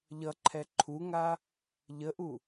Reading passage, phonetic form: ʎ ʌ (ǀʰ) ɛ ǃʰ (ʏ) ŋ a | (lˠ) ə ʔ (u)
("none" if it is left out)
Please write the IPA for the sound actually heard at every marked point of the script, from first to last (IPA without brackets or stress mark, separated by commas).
ǃʰ, u, ʎ, u